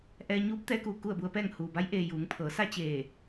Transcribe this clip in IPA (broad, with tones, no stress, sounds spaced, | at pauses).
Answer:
ʔ ɛː˧ ɲ uː˧˥ p̚ t̪ ɛː˧˥ k uː˩ k u˥˨ ə̯ b u˧ ə̯ p ɛː˥˨ ŋ h uː˩ b a˧˥ j ʔ eː˧ j uː˩˧ ŋ pʰ ɤː˩˧ s a˥˨ t͡ɕ eː˧˩